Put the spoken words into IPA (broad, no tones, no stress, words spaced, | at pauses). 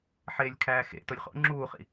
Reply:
ħeːlʲkʰæːxḛ tolʲχo̰ ŋ͡ǁuːχḭ